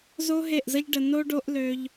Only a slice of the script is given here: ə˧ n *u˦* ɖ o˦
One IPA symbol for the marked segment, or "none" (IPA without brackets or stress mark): o˦